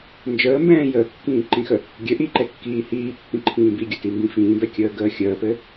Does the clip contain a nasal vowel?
yes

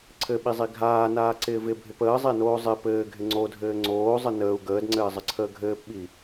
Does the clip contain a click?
yes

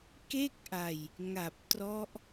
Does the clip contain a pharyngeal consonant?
no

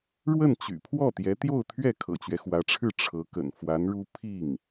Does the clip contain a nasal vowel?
no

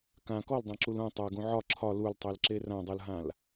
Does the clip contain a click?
yes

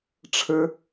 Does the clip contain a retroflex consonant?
yes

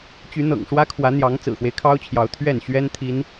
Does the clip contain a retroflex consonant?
yes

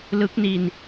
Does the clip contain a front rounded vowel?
no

